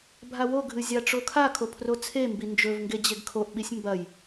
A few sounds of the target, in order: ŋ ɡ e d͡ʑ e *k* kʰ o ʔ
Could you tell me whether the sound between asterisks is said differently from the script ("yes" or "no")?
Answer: yes